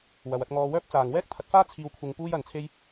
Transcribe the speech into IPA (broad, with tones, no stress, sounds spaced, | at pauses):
w ɐ˨ w ɐ˧ t̚ ŋ ɔː˧ w œː˥ p̚ t͡s aː˨ ŋ w ɛː˥ k̚ t̪ʰ ɐ˨˥ t̚ f aː˥ t͡sʰ iː˧ w kʷʰ ɪ˧ ŋ p uː˥ j ɐ˨ n t͡sʰ e˥ j